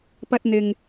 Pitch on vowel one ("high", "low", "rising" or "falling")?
high